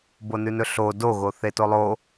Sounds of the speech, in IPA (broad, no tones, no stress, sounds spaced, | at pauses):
b o n ʉ n ɵ ɬ o d o ɣ o θ e t o lˠ o